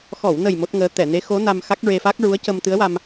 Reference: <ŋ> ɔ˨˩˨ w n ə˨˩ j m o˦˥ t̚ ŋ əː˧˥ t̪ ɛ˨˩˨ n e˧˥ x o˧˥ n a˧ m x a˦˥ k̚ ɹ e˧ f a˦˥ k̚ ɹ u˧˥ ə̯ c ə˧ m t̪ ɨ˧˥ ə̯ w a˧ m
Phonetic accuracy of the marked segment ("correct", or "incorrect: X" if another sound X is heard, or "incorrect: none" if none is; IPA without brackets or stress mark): incorrect: x